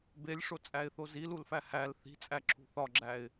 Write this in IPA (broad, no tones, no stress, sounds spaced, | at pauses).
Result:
b e lʲ ʂ o t͡sʼ æ ɪ̯ θ o z i l u l f æ h æ l θ i̤ t͡sʼ æ ǁʰ ṳ θ ɒ ɡ͡ǁ æ ɪ̯